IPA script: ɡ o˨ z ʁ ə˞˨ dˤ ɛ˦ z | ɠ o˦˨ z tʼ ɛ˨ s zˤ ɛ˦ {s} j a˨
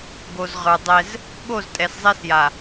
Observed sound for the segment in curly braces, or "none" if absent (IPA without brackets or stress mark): s